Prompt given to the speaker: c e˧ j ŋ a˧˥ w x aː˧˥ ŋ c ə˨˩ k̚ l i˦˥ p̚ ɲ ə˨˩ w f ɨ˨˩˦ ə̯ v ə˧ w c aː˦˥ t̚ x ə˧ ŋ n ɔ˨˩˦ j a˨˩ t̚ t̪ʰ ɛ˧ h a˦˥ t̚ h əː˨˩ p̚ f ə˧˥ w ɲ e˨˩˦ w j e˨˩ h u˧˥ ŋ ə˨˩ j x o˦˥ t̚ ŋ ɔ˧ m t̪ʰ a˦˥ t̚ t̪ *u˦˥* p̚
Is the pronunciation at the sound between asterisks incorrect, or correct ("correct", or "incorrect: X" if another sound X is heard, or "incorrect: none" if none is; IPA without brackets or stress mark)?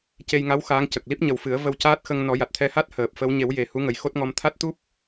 correct